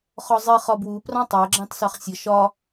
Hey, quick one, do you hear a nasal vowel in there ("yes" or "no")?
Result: yes